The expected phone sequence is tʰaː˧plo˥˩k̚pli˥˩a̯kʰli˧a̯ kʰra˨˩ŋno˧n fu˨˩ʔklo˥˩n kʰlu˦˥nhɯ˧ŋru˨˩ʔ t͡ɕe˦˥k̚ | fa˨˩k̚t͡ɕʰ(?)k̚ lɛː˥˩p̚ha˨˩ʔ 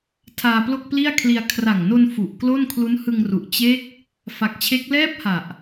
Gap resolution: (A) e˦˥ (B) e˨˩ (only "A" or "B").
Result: A